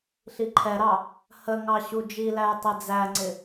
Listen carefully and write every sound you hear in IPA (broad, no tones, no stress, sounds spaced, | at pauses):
ɬ i ǃʰ ɛ ɾ ɑ | h ə ŋ ɑ ɕ u d͡ʒ i l æ j tˤ i d͡z æ ŋ͡ǀ ɪ